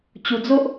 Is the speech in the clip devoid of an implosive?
yes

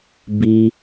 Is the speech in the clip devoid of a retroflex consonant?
yes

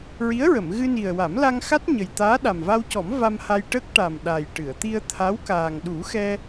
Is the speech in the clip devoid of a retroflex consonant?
no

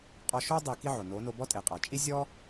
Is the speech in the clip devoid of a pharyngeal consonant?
no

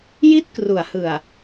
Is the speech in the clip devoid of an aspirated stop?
yes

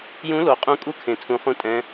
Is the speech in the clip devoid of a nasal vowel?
no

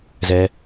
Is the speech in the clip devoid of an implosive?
yes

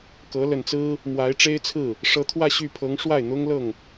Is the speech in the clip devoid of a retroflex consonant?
no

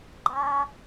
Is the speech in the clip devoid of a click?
no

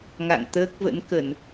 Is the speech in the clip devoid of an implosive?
yes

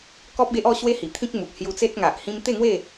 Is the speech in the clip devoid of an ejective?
yes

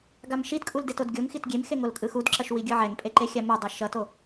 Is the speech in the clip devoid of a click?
no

